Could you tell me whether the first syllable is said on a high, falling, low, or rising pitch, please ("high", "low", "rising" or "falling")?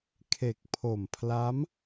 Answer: low